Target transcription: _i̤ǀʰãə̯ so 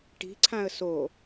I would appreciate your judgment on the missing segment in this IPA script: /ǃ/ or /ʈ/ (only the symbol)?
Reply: ʈ